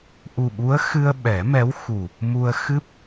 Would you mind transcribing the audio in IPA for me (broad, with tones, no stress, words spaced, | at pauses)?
ʔu˨˩ɓu˧˥ə̯xɨ˧ə̯ ɓɛ˨˩˦mɛ˧˥wxu˨˩ | mu˧ə̯ xɨ˦˥p̚